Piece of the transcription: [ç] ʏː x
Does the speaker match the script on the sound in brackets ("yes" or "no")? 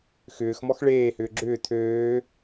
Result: no